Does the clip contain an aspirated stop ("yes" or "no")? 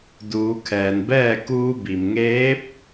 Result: yes